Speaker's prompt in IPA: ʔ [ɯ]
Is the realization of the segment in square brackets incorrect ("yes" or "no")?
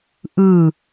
no